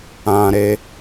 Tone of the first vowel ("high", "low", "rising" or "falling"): high